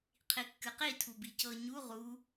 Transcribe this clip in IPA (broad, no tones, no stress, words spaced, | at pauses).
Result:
qʰikːɨqi tʰubicɤ ɲu ʁu